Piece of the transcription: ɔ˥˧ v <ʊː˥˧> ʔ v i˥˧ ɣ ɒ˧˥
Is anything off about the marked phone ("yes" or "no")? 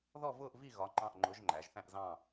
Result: no